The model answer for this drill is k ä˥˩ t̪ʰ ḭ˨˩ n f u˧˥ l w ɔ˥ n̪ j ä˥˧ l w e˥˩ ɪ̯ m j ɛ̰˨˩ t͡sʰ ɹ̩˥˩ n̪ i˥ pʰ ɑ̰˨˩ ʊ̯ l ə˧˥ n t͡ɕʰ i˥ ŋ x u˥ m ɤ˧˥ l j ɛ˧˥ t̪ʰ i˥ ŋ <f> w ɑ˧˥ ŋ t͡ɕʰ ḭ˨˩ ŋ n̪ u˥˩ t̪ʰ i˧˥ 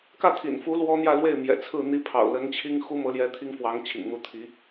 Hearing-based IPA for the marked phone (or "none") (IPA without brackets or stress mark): f